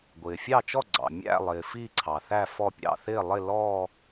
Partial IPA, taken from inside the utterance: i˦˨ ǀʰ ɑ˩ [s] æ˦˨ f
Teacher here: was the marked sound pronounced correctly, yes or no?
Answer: no